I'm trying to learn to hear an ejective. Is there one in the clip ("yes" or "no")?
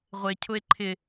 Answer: no